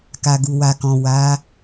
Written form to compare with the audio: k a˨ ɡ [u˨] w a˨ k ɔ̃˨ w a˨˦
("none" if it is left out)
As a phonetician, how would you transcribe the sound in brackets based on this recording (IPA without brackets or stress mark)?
u˨